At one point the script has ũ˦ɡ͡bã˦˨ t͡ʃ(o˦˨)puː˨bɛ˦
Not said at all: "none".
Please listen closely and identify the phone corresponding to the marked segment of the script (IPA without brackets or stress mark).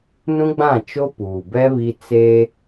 o˦